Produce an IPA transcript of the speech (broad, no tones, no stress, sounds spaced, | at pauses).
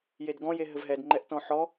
j e d ɡ ɔ̃ j e ɦ ɘ v ɦ ɛ d ŋ͡ǃ ɛ ʔ t ɔ̃ ħ ɔ